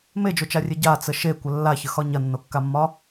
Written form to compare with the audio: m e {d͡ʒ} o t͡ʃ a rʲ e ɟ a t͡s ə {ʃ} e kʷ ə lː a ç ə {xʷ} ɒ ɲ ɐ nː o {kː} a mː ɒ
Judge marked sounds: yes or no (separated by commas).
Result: yes, yes, no, yes